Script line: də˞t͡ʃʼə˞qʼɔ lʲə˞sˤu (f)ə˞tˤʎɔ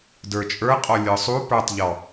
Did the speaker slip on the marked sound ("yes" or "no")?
yes